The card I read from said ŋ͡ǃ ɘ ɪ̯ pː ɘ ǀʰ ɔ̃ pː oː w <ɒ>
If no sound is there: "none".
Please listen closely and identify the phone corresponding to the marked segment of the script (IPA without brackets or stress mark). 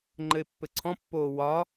ɒ